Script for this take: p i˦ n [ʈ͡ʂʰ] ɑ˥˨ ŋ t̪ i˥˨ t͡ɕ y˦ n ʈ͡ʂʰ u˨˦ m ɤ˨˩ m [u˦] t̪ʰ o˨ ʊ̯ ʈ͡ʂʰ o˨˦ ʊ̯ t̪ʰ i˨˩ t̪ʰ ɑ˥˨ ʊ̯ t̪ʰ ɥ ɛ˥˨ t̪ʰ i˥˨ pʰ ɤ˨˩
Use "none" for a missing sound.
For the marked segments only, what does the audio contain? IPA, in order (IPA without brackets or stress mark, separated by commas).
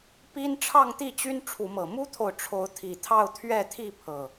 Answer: ʈ͡ʂʰ, u˦